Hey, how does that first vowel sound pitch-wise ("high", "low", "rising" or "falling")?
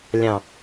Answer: low